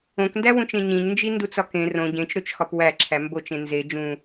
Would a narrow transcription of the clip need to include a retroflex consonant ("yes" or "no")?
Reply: no